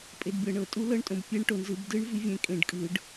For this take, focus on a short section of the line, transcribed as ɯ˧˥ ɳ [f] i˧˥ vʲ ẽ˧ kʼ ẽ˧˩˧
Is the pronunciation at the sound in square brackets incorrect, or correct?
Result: incorrect